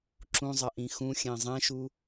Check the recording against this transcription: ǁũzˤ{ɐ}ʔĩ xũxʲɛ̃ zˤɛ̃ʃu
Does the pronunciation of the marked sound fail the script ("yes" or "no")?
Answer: no